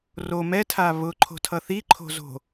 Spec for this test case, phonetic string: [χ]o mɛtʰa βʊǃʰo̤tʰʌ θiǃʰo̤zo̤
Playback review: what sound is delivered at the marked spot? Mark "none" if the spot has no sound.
r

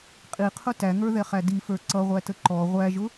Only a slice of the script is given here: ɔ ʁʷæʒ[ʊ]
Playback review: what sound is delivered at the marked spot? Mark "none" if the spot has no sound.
ʊ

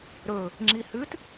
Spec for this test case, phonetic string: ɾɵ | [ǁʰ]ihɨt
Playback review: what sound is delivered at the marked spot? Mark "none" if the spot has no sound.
ŋ͡ǁ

